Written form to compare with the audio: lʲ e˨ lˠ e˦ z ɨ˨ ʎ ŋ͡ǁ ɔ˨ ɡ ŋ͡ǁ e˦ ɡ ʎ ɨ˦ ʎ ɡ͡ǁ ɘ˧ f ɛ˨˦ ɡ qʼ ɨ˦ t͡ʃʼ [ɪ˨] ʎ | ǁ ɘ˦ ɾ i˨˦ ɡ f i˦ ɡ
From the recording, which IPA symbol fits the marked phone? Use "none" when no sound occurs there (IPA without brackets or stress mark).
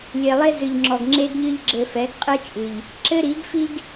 ɨ˨